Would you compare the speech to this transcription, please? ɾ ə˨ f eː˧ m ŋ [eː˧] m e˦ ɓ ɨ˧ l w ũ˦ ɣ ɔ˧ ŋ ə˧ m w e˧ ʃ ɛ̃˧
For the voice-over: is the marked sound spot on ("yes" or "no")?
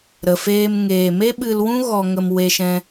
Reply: no